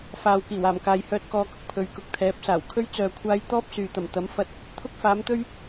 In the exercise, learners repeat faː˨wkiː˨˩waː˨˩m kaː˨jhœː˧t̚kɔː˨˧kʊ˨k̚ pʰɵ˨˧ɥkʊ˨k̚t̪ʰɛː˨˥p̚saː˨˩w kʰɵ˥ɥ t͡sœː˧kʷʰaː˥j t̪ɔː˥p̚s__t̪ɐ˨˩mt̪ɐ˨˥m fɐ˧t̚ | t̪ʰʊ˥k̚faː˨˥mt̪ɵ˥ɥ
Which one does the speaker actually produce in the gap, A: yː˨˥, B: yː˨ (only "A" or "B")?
B